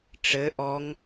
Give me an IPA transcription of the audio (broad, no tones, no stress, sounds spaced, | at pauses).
ʈ͡ʂ ɘ ʔ ɔ ŋ